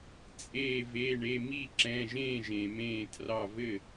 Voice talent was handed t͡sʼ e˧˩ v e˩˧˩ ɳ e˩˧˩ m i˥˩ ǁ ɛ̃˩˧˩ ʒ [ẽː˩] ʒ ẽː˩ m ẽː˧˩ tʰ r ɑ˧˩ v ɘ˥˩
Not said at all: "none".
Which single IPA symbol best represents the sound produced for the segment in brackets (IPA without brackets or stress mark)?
ẽː˥˩